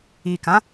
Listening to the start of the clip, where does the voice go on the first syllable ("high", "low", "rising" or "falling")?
low